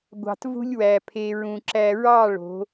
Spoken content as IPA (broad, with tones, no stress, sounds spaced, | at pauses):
ɡʷ ɑ̤˨ t v ṳ˦ lʲ w æ˨ pʰ e˨ ɹ ũ˨ ǁ æ˨ ɹ ɑ˦˨ ɭ o̤˨˦